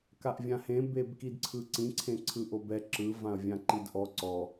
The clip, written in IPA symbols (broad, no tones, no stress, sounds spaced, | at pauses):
k a ʔ vʲ ã h ẽ b e b k i d ǀʰ ɯ ǀ ĩ ǀʰ ẽ ǀʰ ɯ ʔ o b ɛ ǁ ɯ v ã ɐ̯ vʲ ã ǃ i d ʔ ɔ ǀ ɔ